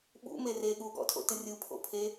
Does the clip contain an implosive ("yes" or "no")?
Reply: yes